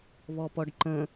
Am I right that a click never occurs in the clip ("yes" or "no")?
no